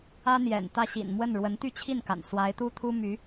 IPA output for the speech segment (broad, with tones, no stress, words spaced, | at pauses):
ä˥n̪jɛ̰˨˩n t̪ä˥˩ ɕḭ˨˩nmwə˥˩n ɻwə˧˥nt̪y˥˧t͡ɕʰi˥˩nka̰˨˩n swa˧˥ɪ̯t̪u˥t̪ʰu˥my˧˥